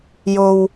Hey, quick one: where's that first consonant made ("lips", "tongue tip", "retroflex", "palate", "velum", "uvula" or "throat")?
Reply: palate